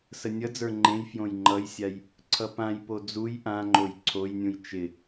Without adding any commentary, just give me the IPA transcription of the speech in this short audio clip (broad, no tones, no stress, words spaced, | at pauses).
sənʲʌd͡zə˞ ŋ͡ǃẽj fjõjŋ͡ǃʌjsʲaj | ǀʰʌpãjpo d͡zuj ʔãŋ͡ǃoj ǀʰojnʲũj t͡ʃɪ